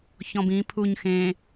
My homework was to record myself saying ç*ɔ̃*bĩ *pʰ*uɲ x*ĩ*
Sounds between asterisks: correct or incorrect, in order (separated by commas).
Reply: correct, correct, incorrect